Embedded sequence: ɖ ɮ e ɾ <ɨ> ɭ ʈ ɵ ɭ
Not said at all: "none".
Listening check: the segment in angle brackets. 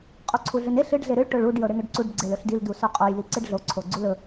ɨ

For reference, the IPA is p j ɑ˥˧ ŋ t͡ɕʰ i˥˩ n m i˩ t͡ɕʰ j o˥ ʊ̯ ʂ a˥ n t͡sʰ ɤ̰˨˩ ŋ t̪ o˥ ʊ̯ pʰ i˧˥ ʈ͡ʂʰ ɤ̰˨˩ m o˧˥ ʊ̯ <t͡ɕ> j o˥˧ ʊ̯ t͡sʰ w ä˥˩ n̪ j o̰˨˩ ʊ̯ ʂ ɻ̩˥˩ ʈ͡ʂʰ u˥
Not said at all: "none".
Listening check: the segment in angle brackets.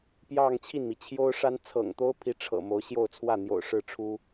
ɕ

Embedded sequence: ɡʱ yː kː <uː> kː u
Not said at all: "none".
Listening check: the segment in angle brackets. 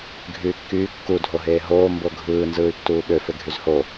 yː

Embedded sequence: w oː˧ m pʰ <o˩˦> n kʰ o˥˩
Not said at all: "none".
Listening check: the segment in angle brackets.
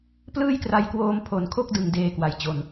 o˨˩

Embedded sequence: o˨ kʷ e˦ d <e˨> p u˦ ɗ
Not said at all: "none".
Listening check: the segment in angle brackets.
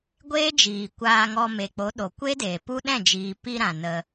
eː˨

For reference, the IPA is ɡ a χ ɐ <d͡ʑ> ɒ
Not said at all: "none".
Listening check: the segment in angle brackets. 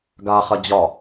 d͡ʑ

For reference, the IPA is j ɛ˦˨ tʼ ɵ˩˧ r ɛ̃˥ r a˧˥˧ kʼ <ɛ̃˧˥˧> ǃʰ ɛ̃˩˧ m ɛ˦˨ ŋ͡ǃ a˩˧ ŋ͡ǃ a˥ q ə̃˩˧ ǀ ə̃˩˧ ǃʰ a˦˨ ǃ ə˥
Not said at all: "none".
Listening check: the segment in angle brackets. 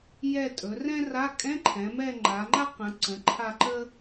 ɛ̃˧˥˧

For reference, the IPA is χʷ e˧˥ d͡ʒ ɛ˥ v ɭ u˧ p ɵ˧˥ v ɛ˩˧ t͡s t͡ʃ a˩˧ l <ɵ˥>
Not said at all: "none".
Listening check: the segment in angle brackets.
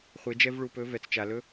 ɵ˥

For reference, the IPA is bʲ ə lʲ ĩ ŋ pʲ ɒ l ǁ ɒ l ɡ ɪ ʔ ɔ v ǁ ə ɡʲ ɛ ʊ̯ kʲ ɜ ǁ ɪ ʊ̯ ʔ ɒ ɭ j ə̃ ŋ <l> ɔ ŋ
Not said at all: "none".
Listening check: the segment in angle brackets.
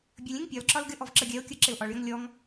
lʲ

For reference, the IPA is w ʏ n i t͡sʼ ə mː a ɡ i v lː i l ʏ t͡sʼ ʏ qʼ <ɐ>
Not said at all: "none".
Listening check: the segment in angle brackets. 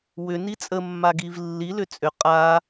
a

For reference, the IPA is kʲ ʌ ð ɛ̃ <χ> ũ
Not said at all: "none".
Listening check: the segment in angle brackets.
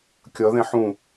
ħ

